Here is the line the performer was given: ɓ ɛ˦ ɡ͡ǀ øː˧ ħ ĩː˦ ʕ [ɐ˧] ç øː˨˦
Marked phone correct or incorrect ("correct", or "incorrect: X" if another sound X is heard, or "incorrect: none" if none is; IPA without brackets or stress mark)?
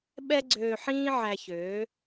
incorrect: æ˧